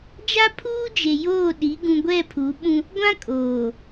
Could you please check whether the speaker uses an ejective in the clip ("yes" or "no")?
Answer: yes